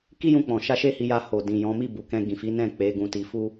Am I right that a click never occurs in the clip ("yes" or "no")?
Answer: yes